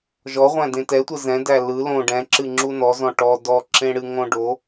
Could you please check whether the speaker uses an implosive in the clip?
no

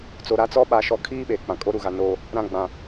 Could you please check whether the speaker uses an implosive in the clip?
yes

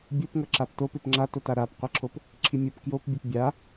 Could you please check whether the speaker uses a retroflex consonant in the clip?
no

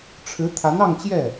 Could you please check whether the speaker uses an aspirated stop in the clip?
yes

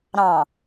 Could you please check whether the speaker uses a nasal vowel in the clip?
yes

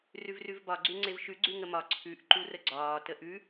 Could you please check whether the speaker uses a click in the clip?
yes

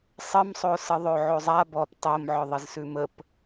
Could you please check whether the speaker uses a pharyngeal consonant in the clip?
yes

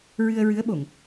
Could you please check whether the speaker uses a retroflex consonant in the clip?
no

